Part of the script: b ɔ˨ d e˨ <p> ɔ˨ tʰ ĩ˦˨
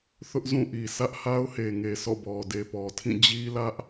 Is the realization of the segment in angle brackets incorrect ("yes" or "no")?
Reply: no